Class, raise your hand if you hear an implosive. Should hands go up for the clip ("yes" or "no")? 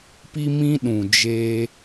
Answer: yes